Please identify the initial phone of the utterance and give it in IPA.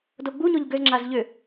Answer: d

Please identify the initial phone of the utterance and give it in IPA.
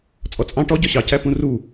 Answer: t͡sʼ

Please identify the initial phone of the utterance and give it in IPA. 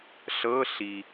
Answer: ɬ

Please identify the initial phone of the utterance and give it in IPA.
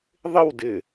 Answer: ðˤ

